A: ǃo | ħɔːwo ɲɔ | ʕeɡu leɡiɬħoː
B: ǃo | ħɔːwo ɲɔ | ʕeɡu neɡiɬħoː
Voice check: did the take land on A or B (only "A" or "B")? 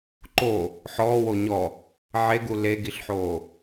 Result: A